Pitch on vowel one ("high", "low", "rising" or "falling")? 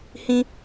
high